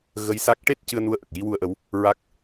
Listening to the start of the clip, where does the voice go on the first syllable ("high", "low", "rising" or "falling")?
rising